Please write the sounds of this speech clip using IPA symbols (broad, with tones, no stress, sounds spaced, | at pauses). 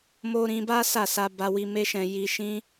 m o˧ ɾ ĩ˧ b a˦ s a˦˨ s a˧ b a˧ w i˧ m e˦ ʃ ɛ̃˧ j i˧ ʃ ĩ˦